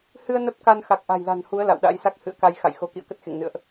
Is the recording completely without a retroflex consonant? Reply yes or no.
yes